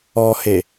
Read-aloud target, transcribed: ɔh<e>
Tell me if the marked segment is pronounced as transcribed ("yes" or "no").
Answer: yes